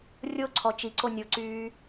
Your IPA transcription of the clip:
rʲ o ǀʰ ɔ t͡ʃ i ǀ o nʲ o ǀ yː

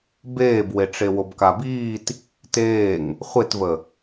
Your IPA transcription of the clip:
b eː b w e ʈ͡ʂ e w o b k a b iː t | t eː ŋ | χʷ e t v ə

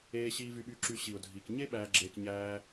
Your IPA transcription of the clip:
eː˧ ɕ iː˧ v y˧ ɓ yː˧ ǁ y˧ ɕ i˨ ʊ̯ dʱ iː˨ k ɲ e˦ ɓ æː˧ ɡ͡ǁ eː˧ k ɲ æː˧

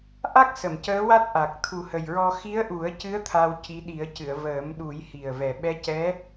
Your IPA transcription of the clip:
ʔ a˦˥ k̚ s ə˨˩˨ m c əː˧˥ w a˦˥ t̚ ʔ a˨˩ k̚ t̪ʰ u˨˩ h ə˨˩ j ɹ ɔ˧ x i˧˥ ə̯ ʔ u˨˩˦ ə̯ c ɨ˧˥ ə̯ t̪ʰ a˧ w c i˧˥ ɗ i˨˩˦ ə̯ c ɨ˨˩˨ ə̯ v əː˨˩˦ m ɗ u˨˩˦ j h i˨˩ ə̯ v ɛ˨˩ ɓ ɛ˧˥ c ɛ˧˥

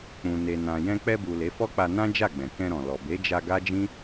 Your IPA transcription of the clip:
k͡p ũ˨ n e˨ n ã˨ j ɛ̃˧ k͡p ɛ˧ b u˨ l e˨˦ f ɔ˦ k͡p a˧ n ã˦ d͡ʒ a˦˨ ɡ͡b ɛ̃˨ k ɛ̃˧ ɾ ɔ̃˨ l ɔ˨ b e˨˦ d͡ʒ a˧ ɡ a˦ d͡ʒ ĩ˦

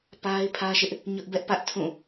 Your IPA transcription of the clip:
p a˦ ɪ̯ pʰ ä˦ ʃ ɪ˦ ʔ | ɲ ʊ˦ ʔ b ɛ˦ ʔ p ä˦ ʔ tʰ ũ˦˨

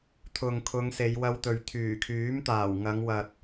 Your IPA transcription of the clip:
t̪ʰ ʊ˨ ŋ kʰ ʊ˨˧ ŋ s e˨˧ j w ɐ˧ w t̪ ɵ˨ ɥ t̪ʰ yː˨˩ kʰ yː˨˥ m t̪ aː˨˩ w ŋ ɐ˨˧ ŋ w ɐ˨ t̚

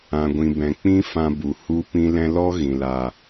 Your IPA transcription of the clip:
ã˨ ɡʷ ĩ˨ b ɛ̃˨ k͡p ĩ˦ f ã˧ b u˨ h u˧ p ĩ˧ l ɛ̃˧ l ɔ˦ ɣ ĩ˨ l a˨

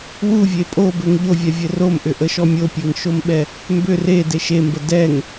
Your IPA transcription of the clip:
w u vʲ e pʼ o b ɘ ŋ ʎ o vʲ ɛ vʲ ɘ r o m ʔ ʏ ʔ ə ʃ ɔ mʲ o pʲ e ŋ ʃ o m ɓ ɛ | m b ʏ r e d e ʃ e m b ə d ɛ ŋ

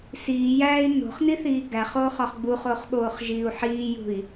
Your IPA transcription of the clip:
s iː j æː i̯ n o̤ χ n i θ iː ɡ æ χ oː χ ɒ χ ɡ͡b u χ oː χ ɓ oː χ ʒ iː u̯ ħ iː j ṳ i̯

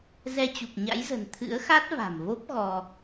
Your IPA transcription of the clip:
z ɛ˧ t͡ɕ u˨˩ k̚ ɲ a̰˧˥ j z ə̤˨˩ n t̪ʰ ɨ̰˧˥ ə̯ x a˦˥ t̚ v a̤˨˩ m v o˦˥ p̚ ɣ ɔ˧

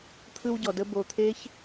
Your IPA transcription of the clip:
t̪ʰ ɯ˧ w ɟ ɔ˨ d ə˧ b o˧ t̪ʰ e˦ ç

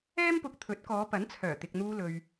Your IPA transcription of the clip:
ɛː˥ m p ʊ˧ k̚ t̪ʰ ɵ˨˥ t̚ k ɔː˨˧ p ɐ˨˥ n t͡sʰ œː˨˩ t̪ ɪ˨ k̚ n̪ uː˧ l ɵ˨ ɥ

